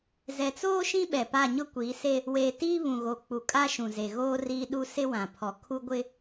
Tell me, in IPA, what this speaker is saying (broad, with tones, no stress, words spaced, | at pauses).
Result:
zɛ˨t͡soː˦ ʃĩ˦ɓɛ˨ pa˦˨ɲʊ˦kʷiː˨˦se˦ | weː˨ tiː˦βũ˨ɣo˨ k͡pu˨kʼa˦ ʃũ˨ze˨ɣoː˦ riː˦ɗu˦ sɪ˦wã˨pʰɔ˨ kʰu˦ɡʷɪ˦